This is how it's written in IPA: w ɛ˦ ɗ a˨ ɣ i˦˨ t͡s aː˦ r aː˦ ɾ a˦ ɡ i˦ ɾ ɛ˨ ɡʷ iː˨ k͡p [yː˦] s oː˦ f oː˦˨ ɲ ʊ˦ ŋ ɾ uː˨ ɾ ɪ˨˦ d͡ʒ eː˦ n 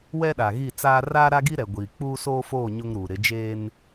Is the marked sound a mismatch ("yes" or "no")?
yes